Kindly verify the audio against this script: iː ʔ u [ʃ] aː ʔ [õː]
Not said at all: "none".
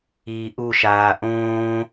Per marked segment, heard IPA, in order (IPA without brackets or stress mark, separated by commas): ʃ, õː